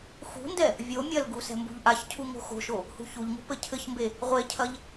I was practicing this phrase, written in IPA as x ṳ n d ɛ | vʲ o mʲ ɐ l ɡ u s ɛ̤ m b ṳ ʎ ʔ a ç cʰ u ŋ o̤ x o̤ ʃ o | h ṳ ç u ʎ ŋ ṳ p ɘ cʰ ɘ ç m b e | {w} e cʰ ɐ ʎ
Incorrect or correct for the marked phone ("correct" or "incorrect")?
incorrect